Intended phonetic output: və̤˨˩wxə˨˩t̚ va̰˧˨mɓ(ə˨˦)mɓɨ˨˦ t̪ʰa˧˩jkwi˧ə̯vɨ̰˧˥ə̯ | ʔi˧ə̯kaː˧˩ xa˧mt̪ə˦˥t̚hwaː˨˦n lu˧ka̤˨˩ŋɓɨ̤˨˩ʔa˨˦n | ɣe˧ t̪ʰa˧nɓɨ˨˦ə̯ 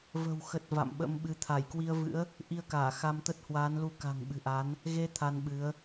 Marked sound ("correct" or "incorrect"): incorrect